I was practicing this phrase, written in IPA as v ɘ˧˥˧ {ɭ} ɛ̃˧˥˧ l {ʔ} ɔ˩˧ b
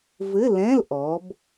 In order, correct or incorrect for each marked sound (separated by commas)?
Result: incorrect, correct